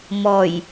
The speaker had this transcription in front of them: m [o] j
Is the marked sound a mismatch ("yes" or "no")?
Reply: yes